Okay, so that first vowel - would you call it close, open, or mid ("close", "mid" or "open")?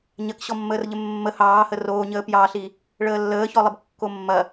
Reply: open